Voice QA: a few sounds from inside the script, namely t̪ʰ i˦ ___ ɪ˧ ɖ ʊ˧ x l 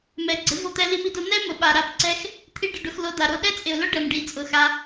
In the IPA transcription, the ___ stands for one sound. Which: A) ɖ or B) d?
A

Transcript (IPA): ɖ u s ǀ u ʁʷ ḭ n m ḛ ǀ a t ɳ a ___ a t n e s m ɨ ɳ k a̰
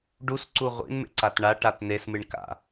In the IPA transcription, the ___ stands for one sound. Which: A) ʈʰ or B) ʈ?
B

